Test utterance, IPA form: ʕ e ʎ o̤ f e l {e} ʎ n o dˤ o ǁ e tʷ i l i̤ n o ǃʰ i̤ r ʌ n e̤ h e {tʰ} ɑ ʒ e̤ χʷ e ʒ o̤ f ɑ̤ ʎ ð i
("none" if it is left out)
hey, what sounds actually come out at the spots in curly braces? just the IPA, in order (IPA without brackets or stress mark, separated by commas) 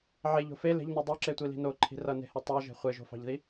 e̤, tˤ